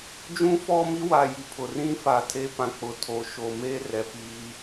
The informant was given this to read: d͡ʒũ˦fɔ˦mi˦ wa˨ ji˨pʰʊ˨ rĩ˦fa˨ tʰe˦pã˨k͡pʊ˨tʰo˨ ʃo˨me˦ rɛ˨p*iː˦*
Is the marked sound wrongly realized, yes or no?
no